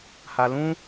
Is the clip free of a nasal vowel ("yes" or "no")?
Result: no